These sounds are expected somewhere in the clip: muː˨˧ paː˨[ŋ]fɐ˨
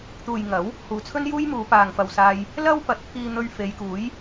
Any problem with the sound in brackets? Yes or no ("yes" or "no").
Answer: no